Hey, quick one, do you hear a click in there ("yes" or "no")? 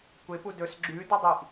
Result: yes